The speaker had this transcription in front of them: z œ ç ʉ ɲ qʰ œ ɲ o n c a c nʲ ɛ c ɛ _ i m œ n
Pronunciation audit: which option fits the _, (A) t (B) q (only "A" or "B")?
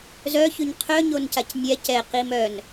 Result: B